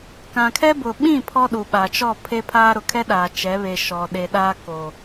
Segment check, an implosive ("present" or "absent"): present